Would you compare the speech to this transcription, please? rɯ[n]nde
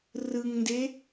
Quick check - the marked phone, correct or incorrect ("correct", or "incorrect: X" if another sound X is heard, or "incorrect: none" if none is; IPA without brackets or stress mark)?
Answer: incorrect: ŋ